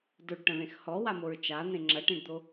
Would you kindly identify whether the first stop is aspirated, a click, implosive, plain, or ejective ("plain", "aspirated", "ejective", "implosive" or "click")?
plain